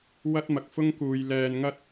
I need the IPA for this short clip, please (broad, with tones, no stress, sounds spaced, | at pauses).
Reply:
w ɐ˥ t̚ m ɐ˨ k̚ f ʊ˥ ŋ k uː˨˧ j l ɛː˨ n ŋ ɐ˥ t̚